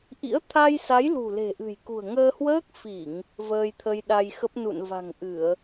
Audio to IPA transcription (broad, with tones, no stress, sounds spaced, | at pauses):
ʔ ḭ˧˥ ə̯ t̪ʰ a˧ j s a˨˦ j l ṳ˨˩ l e̤˨˩ ʔ ɨ̤˨˩ j k ṳ˨˩ ə̯ ŋ əː˧ h w əː˦˥ k̚ f i˧˩˨ ŋ | v əː˧ j t̪ʰ ə˧ j ɗ a˧ j x ə˦˥ p̚ n ṵ˧˨ n v a̤˨˩ ŋ ʔ ɨ˧˩˨ ə̯